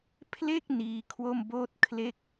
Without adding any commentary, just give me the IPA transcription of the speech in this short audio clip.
pʰle˥˩k̚ niː˥˩ kʰwo˥˩mboː˥˩t̚ kʰle˥˩k̚

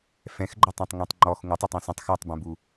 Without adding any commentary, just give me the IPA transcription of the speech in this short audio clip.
fɛ̃xɡ͡ǃətˤẽtˤ ŋẽtˤŋ͡ǃɔx ŋutˤøtˤ ɛ̃sə̃tˤ xatˤbɛ̃bu

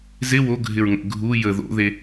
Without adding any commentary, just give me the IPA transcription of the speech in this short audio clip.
zɪ wo ɡʱɪɹŋə̰ ɡʱu jə ðo̰ðe

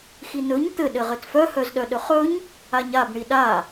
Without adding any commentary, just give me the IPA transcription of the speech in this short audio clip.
xinɵɲ t̪ɘ ɗɘʁɘtfœ hœzɗœɗɵχɵɲ | aɲab ɳiɗa

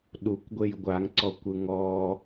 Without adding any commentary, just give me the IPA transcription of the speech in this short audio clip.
ɗukʷɡʷej ɡʷaŋǀɔkʷɯ ŋɔ

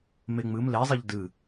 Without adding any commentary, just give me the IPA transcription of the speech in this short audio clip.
meŋ͡mɨm le zˤiʎdɨ

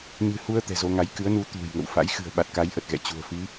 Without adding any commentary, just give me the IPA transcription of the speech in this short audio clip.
ɲɨ̤˨˩hu˧ə̯ t̪ɛ̤˨˩zo˧ŋa˨˦j kɨ˨˦ə̯nu˨˦ t̪ṳ˨˩j ŋə̰˧˨wfa̰˧˥j xɨ̤˨˩ə̯ ɓa˨˩t̚ka˨˦jʔə˨˩t̚ ɣɛ̰˧˨t͡ɕṳ˨˩ə̯ fi˨˦

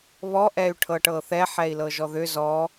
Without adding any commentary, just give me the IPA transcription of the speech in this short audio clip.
βɔʔɛy̯ʈʰɤ ʈɤθɛ ħɛi̯lɤʒɔðʏ zɔ

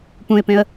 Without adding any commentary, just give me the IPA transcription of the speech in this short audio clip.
pũɪ̯pẽə̯

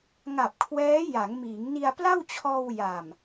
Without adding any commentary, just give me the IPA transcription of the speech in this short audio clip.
ŋa˨˩p̚kʰwɛː˦˥ ja˩˦ŋmiː˩˦ŋni˧a̯ pla˥˩wt͡ɕʰɔː˧w ja˨˩m

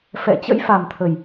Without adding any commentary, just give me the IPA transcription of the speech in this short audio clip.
fɛ̰˧˨t͡ɕə̰˧˥jfa˨˩m t̪ʰə˨˩j

